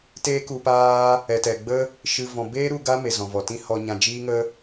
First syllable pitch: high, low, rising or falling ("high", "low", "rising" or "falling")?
high